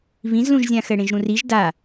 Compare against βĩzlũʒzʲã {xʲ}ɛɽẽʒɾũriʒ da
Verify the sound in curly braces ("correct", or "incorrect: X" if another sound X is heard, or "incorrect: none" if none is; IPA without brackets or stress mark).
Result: incorrect: x